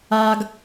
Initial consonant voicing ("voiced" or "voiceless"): voiced